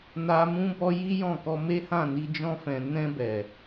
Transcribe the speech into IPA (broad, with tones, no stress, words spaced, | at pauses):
na˦ mũ˦bɔ˦ji˦jɔ̃˦˨ kɔ˧me˦hã˦˨ni˧ d͡ʒɔ̃˧fɛ̃˨ nɛ̃˧bɛ˨